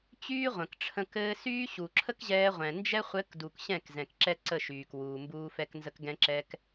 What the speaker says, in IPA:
t͡ɕyː˦ ʁʷə̃˨kʈ͡ʂʰə̃˧ kɘː˧syː˦ ɕu˨ǁʰə˦kʑɛː˧ ʁʷɛ̃˨nd͡ʒɛ˦ χʷɘ˨˦kdu˨k ɕɛ̃˦˨kzɛ̃˨k ǁɛ˦ǀə˦˨ ʃyː˨k wuː˨mbuː˧fɛ˧k nzə˧kɡɛ̃˧ǁɛ˧k

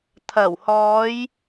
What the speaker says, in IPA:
t̪ʰɐ˨˩whɔː˨˧j

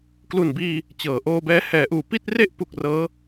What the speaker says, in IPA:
klu˨˩nbiː˧ | t͡ɕɤː˩˦ʔoː˧bɛː˧ hɛː˩˦ʔuː˩˦ pi˥˩t̚re˥˩ʔpu˨˩k̚ rɤː˦˥

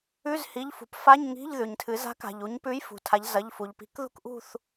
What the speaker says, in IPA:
ʉ˧˥˧zhi˩˧˩ʎfṳ˩˧pfa˧˥˧ɲ ŋi̤˧˥˧ʎ ðʉ˩ɲtʰɨ˩˧ za̤˨˥ka̤˩ʎu˩˧ɲpʉ˨˥j fṳ˩˧tʰa˨˥ʎ zɐ˩˧˩ʎfu˩ʎpi̤˨˥k ðṳ˦˨kʔṳ˦˨θ

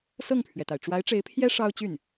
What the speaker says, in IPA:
sɤ˥˩ŋpʰɥɛ˩t̪a˩ɪ̯ ʈ͡ʂwa˧˥ɪ̯ʈ͡ʂe˧˥ɪ̯pʰjɛ˥ ʂɑ˥ʊ̯t͡ɕy˥˩n

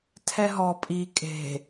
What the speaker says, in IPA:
tʰɛɦɔ pʼi kʼe̤

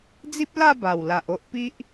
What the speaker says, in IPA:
d͡zi˦p̚la˥˧ ba˨˩wla˨ʔ o˦ʔpi˦ʔ

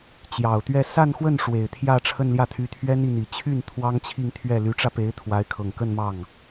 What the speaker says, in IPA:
t͡ɕjɑ˨˩ʊ̯t̪ɥɛ˥˧ sa˥˧nxwə˥˩n ʂwe˨˩ɪ̯t̪ʰjä˥˧ ʈ͡ʂʰə˥˧nljä˥˩t̪ʰy˧˥t̪ʰɥɛ˥n i˥˩n̪i˨˩ t͡ɕʰy˥˩n t̪ʰwɑ˥ŋt͡ɕʰi˥˧ŋ t̪ʰɥɛ˥˩ ly˧˥ʈ͡ʂä˧pe˧˥ɪ̯ t̪ʰwa˧˥ɪ̯kʰɤ˨˩ŋkə˥˧n mɑ˥˩ŋ

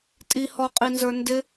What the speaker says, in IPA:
tʼihɔqʼinzə˞ ndɪ

